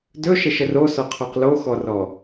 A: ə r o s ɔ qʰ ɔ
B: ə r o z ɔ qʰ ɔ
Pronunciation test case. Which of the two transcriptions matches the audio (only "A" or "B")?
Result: A